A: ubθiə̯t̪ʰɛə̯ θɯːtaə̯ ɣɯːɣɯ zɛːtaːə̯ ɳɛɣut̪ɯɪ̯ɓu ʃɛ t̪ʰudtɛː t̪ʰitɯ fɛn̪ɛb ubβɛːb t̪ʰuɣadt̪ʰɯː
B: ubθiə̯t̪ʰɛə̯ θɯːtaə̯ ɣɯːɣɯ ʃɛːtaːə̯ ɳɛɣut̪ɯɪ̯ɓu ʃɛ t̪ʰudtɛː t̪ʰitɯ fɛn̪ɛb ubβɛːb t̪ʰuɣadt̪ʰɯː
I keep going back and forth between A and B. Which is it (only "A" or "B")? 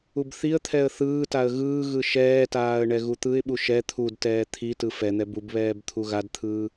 B